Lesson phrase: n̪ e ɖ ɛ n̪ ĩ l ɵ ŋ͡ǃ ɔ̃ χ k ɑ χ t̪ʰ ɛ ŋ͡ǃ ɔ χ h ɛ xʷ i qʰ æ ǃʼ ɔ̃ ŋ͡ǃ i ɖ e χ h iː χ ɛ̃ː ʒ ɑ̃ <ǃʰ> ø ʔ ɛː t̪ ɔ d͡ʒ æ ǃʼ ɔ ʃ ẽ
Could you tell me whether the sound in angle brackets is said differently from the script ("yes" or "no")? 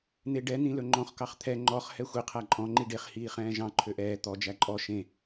no